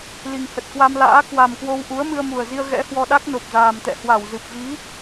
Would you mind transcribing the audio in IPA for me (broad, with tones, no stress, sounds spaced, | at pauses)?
l i˨˩ ŋ h ə˨˩ t̚ k w a˧ m l a̰ː˧˥ k w a˨˩ m k w o˧ w ʔ u˨˦ ə̯ m ɨ˧ ə̯ m u˨˩ ə̯ z i˧ ə̯ ɣ ɛ̰˧˥ h w ɔ˧ ɗ a˦˥ k̚ n o˨˩ p̚ z aː˨˩ m t̪ ɛ̰˧˨ h w a˧˩ w z ɨ˨˩ p̚ v i˨˦